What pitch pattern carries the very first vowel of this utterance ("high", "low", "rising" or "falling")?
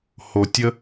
low